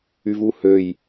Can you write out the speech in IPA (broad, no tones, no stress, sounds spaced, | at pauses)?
y v u h ø j